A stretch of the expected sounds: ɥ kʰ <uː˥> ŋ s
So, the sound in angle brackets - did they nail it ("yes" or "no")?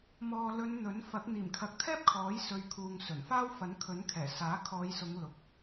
no